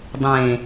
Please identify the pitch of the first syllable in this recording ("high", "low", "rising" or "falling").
low